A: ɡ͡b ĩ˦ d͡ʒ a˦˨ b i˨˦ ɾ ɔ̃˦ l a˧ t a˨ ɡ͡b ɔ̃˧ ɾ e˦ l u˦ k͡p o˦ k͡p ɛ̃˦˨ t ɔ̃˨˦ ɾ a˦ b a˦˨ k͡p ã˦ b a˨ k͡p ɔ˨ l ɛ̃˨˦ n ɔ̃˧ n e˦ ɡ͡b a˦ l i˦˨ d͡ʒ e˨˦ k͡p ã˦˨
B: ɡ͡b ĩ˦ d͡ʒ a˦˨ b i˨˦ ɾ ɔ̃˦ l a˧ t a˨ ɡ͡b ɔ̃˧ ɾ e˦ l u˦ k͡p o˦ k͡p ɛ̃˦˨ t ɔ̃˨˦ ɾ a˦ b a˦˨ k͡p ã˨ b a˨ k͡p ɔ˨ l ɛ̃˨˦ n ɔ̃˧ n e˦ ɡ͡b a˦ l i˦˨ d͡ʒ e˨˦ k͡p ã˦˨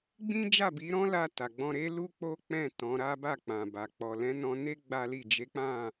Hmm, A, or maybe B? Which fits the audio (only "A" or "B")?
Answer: B